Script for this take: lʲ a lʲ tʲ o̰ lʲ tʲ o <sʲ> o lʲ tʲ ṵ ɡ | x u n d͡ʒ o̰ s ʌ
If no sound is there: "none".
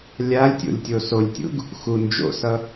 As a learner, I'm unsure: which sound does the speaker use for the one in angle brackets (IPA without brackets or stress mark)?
s